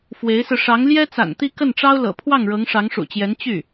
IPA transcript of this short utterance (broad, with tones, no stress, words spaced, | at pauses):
fwe˧˥ɪ̯sɹ̩˧ ʂɑ˧˥ŋljɛ˥t͡sa̰˨˩n t̪i˥˧kə˥˩nʈ͡ʂɑ˥ʊ̯ lɤ̰˨˩pʰwɑ˥˩ŋɻɤ˧˥ŋ ʂɑ˧˥ŋʂṵ˨˩t͡ɕjɛ˧˥n t͡ɕy˥˩